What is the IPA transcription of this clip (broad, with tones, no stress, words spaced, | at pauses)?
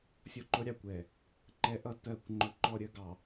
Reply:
sʲɔ˦ǃʊ˦ɾʲɑ˨kʷɛ˨ | ǃɛ˦ʔʌ˦ tɜ˦˨kʷŋ͡ǃʊ˦ǃɔ˦ɾʲə˦ ɡɑ˨